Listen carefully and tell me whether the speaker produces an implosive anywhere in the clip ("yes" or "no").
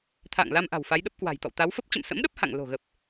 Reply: yes